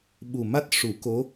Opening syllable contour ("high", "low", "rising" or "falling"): low